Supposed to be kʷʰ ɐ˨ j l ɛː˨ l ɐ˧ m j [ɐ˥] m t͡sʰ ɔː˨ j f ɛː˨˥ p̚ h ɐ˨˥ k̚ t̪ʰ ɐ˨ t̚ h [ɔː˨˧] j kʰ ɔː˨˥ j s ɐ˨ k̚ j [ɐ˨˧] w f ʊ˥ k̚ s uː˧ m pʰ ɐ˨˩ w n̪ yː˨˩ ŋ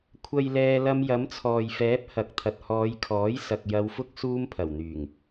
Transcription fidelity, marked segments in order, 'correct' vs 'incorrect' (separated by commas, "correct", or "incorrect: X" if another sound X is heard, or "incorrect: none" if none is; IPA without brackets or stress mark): incorrect: ɐ˨˥, correct, incorrect: ɐ˧